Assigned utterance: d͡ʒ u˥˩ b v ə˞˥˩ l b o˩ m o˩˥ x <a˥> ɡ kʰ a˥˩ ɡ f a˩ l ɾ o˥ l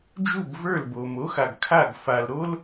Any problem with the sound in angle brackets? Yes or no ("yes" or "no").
yes